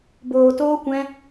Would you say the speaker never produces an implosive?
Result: yes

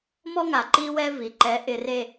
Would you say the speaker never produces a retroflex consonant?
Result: yes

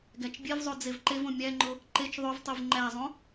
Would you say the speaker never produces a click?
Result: no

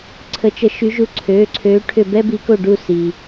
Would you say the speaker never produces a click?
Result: no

